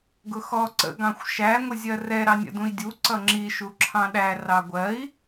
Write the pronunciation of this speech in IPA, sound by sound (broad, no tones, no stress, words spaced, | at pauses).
ɡʊxɔ ǀə̰ ɡɑ̃xʷʃæ ŋʷɪzʲɜrɛ ɾɑnʲə̰dũi̯dʲu ǀʌŋ͡ǁi ʃuǁʰɑ̃ɗæ rɑɡʷɜi̯